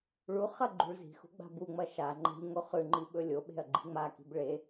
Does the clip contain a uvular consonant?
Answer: yes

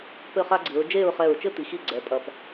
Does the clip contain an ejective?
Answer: yes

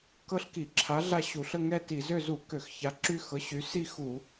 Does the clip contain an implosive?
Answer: no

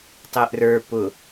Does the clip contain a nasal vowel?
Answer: no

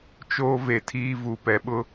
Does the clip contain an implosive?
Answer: yes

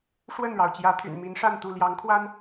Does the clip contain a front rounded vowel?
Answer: yes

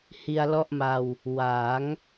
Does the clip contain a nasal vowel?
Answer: no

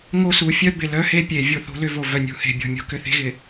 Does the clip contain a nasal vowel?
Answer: no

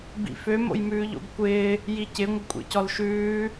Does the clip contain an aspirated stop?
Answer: no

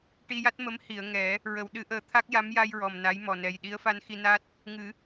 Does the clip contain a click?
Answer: no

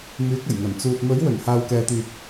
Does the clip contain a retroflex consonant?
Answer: no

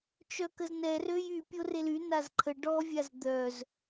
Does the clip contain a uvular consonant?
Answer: no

